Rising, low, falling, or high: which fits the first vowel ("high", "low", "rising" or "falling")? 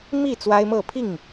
falling